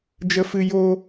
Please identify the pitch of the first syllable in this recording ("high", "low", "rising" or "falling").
high